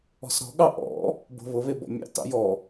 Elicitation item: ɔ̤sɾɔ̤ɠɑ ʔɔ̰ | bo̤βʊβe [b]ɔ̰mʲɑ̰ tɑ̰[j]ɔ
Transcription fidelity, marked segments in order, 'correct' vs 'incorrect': correct, correct

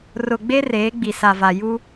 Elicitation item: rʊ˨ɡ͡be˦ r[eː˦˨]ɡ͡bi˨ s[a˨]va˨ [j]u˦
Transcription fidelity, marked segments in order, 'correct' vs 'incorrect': incorrect, correct, correct

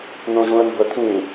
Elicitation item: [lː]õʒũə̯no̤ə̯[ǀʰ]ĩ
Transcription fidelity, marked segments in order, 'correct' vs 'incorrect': incorrect, incorrect

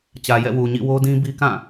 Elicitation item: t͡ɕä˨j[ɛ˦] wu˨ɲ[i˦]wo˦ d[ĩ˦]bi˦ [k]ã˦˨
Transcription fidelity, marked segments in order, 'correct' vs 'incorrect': incorrect, incorrect, correct, correct

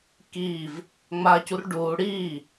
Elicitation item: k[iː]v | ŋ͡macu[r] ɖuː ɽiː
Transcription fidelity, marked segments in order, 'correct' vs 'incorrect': correct, correct

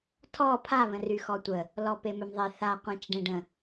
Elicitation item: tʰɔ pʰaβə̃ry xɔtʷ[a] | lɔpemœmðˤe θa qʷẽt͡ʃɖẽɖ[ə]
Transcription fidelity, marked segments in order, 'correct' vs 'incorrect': incorrect, incorrect

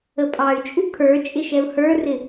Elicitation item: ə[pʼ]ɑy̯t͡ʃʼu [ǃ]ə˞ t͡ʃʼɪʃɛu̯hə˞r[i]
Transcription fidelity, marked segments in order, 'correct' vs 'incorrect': correct, incorrect, incorrect

